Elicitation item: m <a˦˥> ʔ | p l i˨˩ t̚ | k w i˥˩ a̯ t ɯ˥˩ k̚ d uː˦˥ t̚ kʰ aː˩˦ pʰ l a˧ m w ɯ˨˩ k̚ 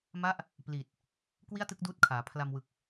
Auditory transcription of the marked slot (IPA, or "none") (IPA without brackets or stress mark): a˦˥